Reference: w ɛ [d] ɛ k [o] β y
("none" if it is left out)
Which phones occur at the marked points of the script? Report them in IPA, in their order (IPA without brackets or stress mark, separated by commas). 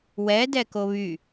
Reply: d, o